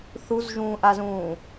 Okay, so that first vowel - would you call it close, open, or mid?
close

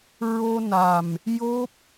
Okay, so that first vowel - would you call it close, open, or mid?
mid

